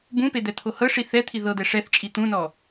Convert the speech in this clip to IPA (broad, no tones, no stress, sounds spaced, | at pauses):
b ũ p e d̪ ɛ t̪ʰ o h ɤ ʂ i θ ɛ t̪ʰ i ð ɤ d̪ ɛ ʂ ɛ θ t͡ʃʼ i t̪ ũ n ɔ